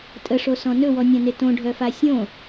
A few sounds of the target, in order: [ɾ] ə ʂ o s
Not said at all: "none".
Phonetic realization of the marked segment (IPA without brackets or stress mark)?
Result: tʼ